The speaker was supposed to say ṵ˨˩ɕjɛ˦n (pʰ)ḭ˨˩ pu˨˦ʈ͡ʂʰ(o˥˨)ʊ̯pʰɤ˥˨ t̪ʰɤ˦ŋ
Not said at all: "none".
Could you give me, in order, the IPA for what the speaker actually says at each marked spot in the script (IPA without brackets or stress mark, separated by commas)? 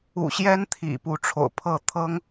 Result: t̪ʰ, o̰˨˩